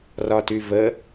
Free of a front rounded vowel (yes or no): no